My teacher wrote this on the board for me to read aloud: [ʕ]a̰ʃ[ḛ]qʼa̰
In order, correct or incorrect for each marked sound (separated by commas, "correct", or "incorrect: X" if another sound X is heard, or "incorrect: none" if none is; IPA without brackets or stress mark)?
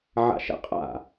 correct, incorrect: ɛ̰